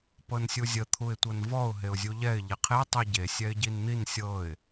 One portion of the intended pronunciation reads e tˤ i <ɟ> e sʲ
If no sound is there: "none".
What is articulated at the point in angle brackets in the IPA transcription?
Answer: ɟ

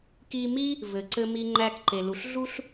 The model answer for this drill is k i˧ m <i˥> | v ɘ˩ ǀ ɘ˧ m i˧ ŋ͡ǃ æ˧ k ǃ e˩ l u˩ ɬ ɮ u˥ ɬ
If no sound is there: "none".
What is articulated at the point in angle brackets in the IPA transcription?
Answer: i˥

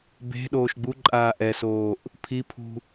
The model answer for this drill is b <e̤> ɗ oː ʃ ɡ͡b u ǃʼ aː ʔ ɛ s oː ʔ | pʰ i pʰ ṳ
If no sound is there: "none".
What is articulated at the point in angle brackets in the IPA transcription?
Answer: e̤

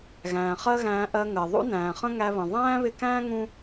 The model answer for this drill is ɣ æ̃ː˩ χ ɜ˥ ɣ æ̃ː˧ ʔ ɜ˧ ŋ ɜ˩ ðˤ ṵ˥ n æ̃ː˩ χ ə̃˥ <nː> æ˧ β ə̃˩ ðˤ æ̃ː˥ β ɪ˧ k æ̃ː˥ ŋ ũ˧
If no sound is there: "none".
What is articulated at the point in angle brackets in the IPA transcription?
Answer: ŋ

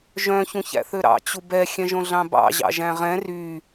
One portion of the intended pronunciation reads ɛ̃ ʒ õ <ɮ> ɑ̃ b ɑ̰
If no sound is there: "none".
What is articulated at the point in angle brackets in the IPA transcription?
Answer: ɮ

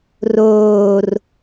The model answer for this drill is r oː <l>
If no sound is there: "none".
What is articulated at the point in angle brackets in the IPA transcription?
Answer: r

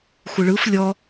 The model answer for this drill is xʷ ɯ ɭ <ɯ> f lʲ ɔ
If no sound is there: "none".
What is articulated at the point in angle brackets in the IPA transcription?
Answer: ɯ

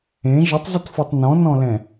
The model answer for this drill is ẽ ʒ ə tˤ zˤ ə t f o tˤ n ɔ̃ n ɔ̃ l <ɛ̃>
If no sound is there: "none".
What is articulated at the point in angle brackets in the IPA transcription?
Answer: ɛ̃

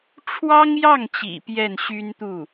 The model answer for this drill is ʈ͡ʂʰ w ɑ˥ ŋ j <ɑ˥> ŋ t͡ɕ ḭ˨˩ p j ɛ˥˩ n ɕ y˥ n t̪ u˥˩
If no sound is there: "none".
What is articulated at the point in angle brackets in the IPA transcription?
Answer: ɑ˥˩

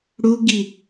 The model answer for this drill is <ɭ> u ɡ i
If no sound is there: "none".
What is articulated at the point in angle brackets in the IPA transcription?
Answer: ɽ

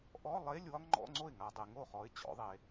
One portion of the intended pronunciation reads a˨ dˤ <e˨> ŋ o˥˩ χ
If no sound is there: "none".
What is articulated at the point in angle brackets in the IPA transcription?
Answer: e˨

